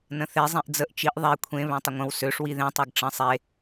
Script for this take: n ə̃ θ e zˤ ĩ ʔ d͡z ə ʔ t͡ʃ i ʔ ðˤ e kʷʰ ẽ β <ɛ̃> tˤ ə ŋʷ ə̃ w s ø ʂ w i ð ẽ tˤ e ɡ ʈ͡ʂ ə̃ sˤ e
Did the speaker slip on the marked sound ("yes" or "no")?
yes